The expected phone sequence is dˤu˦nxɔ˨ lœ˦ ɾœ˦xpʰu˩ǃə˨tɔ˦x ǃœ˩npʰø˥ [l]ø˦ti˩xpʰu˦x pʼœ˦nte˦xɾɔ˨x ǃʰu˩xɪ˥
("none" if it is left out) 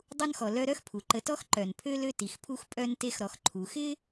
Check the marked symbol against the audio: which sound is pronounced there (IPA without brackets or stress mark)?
l